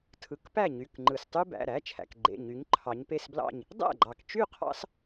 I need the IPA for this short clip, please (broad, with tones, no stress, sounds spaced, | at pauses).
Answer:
tʰ ɯ˩˥ k p æ˥˩ ɲ y˩˧˩ k ŋ͡ǃ ɯ˩ s tˤ y˦ b æ̰˩˧˩ ɾ æ˩˧˩ t͡ʃʰ æ̰˩ k ɡ͡ǃ ḛ˩˧˩ ɲ y˩˥ ɲ ǃʰ ɑ˩˧ ɲ p e˥˩ s b l ɑ̰˥˩ ɲ | dˤ æ̰˥˩ ɡ͡ǃ ɑ˩ k t͡ʃ y˥˩ qʰ ɑ̰˦ s